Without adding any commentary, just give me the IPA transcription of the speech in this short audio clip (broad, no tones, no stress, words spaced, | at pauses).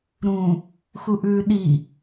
ɾũ | xuʔʉːɗi